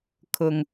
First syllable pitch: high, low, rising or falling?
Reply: low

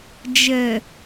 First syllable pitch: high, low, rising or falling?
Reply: low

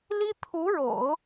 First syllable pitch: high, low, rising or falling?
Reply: high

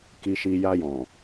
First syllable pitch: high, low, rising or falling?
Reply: low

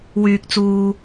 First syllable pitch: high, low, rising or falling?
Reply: low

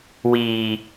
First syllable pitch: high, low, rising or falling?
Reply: low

